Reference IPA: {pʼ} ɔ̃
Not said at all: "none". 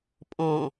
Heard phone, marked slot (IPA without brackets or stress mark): pʼ